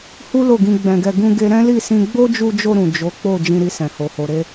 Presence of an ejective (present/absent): absent